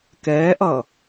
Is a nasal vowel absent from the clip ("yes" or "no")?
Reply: yes